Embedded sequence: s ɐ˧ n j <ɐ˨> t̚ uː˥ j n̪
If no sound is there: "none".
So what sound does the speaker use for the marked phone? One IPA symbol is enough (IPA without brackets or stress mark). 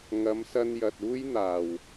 ɐ˨